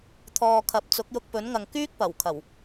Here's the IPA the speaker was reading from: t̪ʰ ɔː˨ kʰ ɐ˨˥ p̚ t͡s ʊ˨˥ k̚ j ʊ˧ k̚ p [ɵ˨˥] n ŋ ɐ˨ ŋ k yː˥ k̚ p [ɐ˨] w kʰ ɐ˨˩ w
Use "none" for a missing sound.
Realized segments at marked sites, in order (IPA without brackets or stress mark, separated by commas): ɵ˨˥, ɐ˨˩